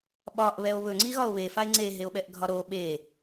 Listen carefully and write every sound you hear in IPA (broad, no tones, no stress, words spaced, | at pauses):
ɓɒʔβɛo̯ βɵŋ͡ǀiɣɒo̯ βefae̯ ŋ͡ǀeɦeo̯ɓɛʔɡʱɒ ɾo ɓe